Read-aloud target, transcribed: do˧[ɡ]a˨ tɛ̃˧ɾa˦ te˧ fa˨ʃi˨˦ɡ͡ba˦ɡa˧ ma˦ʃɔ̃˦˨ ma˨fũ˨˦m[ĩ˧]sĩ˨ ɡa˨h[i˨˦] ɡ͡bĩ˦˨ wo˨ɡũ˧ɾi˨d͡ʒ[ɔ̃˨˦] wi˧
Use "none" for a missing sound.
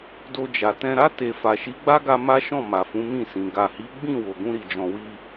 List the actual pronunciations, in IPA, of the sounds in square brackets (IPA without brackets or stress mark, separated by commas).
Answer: d͡ʒ, ĩ˦˨, i˨˦, ɔ̃˨